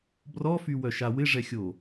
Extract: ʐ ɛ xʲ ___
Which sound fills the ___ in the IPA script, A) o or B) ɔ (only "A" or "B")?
A